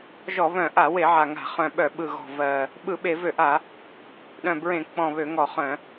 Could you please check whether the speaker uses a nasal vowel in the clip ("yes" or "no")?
yes